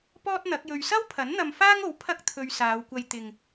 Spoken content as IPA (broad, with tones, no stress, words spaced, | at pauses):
pɔː˥t̚n̪ɐ˨˥k̚jɵ˧ɥ sɐ˥wpʰɐ˨˥n n̪ɐ˧mfaː˥ŋo˨˥w pʰɐ˥k̚t̪ʰɵ˧ɥsaː˨˧wkʷɐ˧j t̪ɪ˨ŋ